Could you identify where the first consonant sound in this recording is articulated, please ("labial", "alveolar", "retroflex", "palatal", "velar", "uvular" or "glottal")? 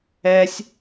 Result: alveolar